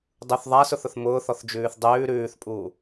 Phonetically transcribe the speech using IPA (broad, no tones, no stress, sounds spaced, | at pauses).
dˤ u θ ðˤ a s ʊ θ ʊ θ m ʊː θ ɔ θ d͡ʒ ʉː θ dˤ ʉː ɾ ʉː θ pʼ uː